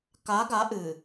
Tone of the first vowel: rising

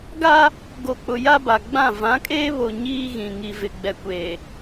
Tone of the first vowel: high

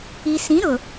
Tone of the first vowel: low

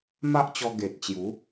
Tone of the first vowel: high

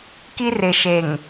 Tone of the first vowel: high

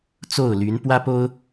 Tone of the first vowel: falling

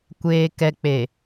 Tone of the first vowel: low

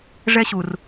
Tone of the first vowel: high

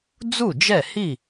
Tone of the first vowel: falling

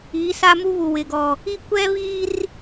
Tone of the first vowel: rising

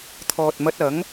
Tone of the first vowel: low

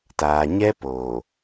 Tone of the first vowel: low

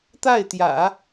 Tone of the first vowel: falling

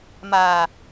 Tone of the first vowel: low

